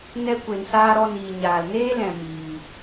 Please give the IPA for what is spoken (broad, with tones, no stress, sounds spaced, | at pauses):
n ɛ˧ kʷ e˨ n s aː˧ ɾ ɔ˧ n iː˨ ɲ aː˨ l n eː˦ l ɛ̃˨ m iː˨